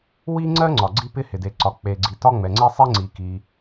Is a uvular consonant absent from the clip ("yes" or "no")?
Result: yes